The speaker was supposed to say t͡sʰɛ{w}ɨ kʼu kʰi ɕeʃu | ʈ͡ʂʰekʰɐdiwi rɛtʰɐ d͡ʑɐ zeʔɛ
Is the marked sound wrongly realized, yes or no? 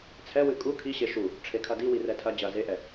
no